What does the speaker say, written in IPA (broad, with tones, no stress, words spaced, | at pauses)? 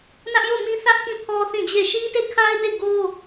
nä˦ʔjo˦˨mĩ˦ θä˦ʔ kĩ˦˨pʰɔ˦ θĩ˦˨d͡ʑe˦˨ ʃi˦te˦˨kʰa˦ɪ̯de˦˨ ɡo˦